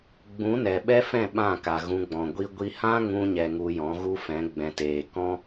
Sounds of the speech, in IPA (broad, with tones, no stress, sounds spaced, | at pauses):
ɡ͡b ũ˨˦ n ɛ˨ ɓ ɛ˦ f ɛ̃˦˨ ɓ ã˦˨ k a˨ ɣ ũ˧ ɡ͡b ɔ̃˨ ɡʷ i˦ ɡʷ i˦ h ã˦ ŋ ũ˧ ɲ ɛ˨ ŋ u˧ j ɔ̃˨˦ ɣ u˦ f ɛ̃˨˦ ɡ͡b ɛ̃˧ t eː˧ k ɔ̃˦